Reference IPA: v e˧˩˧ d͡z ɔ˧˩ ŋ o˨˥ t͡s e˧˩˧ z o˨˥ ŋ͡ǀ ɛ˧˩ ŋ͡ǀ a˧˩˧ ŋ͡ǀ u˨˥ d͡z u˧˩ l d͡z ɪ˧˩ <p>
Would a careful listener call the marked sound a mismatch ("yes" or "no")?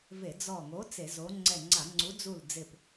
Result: no